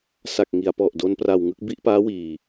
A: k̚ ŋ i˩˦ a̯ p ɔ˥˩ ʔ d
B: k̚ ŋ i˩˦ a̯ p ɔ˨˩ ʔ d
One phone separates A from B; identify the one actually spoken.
B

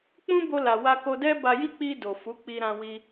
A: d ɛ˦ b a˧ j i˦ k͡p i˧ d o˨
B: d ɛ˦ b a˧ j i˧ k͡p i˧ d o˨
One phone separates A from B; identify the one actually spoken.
A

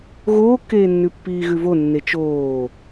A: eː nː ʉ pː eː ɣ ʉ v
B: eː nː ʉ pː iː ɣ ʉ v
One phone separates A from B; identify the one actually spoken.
B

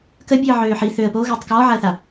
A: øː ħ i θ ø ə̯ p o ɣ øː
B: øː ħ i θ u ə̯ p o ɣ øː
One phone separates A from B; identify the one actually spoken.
A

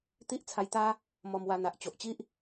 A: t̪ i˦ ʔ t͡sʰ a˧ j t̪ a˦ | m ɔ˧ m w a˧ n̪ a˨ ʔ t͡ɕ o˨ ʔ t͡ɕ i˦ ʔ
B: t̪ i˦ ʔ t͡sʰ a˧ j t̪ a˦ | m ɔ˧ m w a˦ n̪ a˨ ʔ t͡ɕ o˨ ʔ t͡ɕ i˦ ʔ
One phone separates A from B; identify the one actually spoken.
A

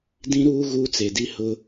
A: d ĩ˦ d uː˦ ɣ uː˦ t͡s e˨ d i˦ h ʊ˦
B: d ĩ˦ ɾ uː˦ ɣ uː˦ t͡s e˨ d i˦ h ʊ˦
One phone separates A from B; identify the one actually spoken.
B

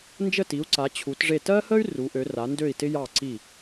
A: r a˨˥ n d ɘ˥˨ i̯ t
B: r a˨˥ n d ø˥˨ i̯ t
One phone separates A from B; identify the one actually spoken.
B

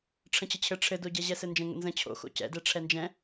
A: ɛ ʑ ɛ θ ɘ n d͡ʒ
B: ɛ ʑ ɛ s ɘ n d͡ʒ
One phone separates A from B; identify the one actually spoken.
B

